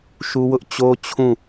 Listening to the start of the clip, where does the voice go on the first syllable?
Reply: high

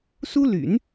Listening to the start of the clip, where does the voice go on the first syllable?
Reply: high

